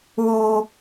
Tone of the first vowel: high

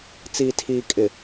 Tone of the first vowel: low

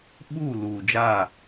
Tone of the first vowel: falling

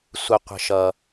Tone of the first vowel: low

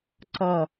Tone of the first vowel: falling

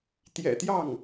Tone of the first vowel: low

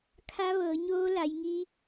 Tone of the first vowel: rising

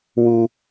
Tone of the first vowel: high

